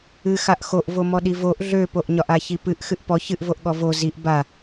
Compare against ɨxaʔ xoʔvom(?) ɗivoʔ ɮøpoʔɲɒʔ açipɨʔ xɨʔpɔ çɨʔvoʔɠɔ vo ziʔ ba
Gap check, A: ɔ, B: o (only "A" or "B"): A